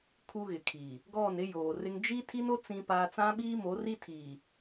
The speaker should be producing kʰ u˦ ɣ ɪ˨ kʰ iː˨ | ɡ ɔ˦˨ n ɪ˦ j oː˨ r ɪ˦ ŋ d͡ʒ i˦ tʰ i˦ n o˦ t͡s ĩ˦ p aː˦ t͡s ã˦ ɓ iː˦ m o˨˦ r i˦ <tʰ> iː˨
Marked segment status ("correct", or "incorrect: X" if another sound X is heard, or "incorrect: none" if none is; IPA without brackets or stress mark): correct